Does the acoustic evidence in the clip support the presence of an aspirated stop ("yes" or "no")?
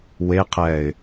yes